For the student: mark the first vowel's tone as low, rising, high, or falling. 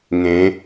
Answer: rising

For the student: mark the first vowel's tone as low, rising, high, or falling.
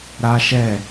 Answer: high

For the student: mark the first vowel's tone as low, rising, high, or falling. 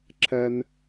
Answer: high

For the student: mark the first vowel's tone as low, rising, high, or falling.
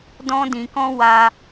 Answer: high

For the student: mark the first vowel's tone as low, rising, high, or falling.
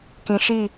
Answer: low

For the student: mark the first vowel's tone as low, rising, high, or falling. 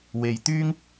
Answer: low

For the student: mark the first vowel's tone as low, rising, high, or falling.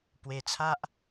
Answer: low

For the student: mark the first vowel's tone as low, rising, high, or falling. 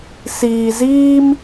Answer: low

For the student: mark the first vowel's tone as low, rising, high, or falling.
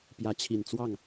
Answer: rising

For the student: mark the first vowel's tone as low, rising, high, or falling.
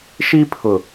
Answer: high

